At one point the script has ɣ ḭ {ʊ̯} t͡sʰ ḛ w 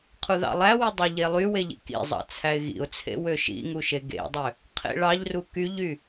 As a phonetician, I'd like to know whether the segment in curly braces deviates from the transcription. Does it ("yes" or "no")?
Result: no